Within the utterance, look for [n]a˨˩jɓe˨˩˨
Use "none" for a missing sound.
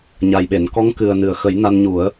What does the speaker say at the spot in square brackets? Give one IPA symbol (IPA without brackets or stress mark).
ɲ